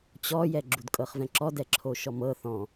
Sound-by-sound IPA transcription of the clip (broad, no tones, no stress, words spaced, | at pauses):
t͡ɕɔjɛ ɡ͡ǁudkʼɤχvɛ̃ǁɔ dɛǁʰoʃɔmɤ θɔ̃